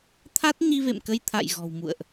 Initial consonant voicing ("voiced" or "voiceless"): voiceless